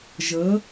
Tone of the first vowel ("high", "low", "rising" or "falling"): rising